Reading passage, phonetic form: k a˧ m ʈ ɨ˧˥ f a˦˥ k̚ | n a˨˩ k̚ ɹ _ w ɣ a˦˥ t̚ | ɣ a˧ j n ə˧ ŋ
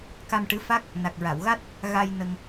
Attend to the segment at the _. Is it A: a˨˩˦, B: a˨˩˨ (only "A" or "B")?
B